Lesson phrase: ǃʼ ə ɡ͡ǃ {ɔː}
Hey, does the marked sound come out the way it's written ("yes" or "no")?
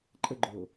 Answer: no